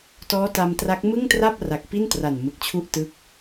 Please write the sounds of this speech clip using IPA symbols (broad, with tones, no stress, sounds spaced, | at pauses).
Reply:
t ɔː˦˥ t a˧ m t r a˦˥ k̚ m ɯ˥˩ ŋ t r a˥˩ p̚ r a˨˩ k̚ p i˥˩ n t r a˨˩ n m ɯ˨˩ k̚ t͡ɕʰ u˥˩ ʔ t ɯ˦˥ k̚